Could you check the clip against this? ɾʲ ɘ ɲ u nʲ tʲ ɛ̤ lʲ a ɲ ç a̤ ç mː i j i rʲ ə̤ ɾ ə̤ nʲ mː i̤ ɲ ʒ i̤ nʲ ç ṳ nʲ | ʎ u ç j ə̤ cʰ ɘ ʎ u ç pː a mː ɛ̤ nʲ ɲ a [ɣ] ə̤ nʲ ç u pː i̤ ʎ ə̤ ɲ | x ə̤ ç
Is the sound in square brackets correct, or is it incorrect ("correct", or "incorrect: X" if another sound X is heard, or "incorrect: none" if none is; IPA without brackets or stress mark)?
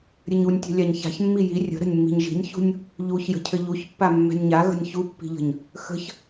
correct